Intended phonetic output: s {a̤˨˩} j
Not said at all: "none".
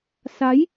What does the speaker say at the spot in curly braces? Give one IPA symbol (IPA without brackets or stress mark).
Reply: a˨˦